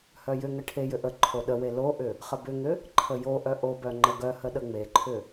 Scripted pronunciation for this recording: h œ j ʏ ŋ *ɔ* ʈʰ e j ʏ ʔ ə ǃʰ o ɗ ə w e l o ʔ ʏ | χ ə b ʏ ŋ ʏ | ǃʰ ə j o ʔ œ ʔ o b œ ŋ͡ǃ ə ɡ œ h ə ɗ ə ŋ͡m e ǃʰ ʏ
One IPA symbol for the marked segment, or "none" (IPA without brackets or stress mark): ə